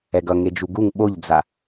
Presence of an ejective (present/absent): absent